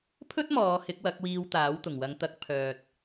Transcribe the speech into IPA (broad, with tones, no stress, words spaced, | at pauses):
pʰɵ˥t̚mɔː˨˧ hɪ˨˥k̚wɐ˨˥k̚wiː˧w t̪aː˨˥wt̪ʊ˨˩ŋ wɐ˨˧ŋt̪ɐ˨˥k̚ pʰœː˨t̚